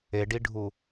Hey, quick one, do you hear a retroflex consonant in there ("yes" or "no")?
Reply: yes